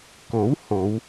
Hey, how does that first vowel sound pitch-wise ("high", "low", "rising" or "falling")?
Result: rising